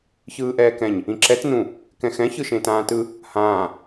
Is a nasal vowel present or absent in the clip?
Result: present